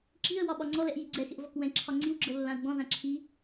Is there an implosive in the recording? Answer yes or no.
yes